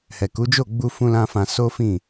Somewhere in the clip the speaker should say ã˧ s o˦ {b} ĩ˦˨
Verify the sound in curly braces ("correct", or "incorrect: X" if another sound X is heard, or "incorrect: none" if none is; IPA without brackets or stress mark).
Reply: incorrect: f